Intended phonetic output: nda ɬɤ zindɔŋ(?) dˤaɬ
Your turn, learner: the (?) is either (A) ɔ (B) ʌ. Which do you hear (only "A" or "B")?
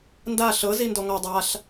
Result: A